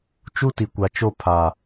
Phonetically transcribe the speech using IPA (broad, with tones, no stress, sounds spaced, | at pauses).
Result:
t͡ʃ u˦ t i˨ kʷ a˨ t͡ʃ o˦˨ pʰ a˨